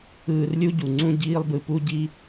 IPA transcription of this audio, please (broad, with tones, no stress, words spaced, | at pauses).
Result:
ɯː˧rlʲu˥ɟu˩ ŋ͡ǀũ˥ɟiː˥lˠbɯ˧pu˥ ɟi˥